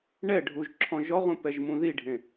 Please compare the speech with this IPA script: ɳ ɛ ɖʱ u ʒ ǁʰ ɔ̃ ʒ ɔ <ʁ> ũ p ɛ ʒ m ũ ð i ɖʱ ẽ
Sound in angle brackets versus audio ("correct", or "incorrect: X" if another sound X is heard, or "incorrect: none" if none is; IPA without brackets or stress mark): correct